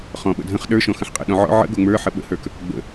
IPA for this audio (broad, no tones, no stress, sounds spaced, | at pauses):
χ ɔ̃ ɓ ə̰ dʱ ə̃ χ ɗ ə˞ ʃ ɔ̃ x ə̃ ħ qʼ ə̰ ɗ ɔ̃ ʕ ɔ̰ ʕ ə̰ ɡ o ŋ͡m ə˞ ħ ə ɓ ə̰ h ə˞ k | ɡ͡b ə̰